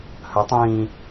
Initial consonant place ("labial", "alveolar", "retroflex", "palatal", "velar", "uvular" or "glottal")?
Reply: glottal